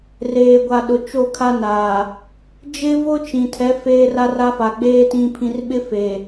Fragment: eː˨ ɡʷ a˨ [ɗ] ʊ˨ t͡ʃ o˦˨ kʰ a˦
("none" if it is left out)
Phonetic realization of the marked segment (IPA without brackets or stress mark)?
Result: ɗ